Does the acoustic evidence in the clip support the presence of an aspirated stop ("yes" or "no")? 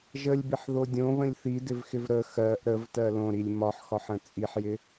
no